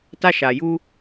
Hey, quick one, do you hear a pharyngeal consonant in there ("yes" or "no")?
no